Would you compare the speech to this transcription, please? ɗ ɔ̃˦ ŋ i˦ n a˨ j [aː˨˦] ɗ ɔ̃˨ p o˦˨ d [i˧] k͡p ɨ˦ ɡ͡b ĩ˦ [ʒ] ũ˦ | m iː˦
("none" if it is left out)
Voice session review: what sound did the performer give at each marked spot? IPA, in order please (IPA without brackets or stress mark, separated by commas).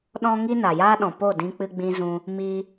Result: aː˦, ĩ˧, z